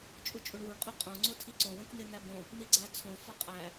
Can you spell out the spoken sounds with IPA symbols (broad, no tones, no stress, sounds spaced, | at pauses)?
t͡ʃʼ u t͡ʃʼ u ɳ w u ɳ qʼ o qʼ õ ŋ͡ǀ o tʰ i ǀ õ w ẽ k n̪ e n̪ æ b õ | n̪ i ɡ͡ǀ æ t͡sʰ õ f ɒ qʼ æ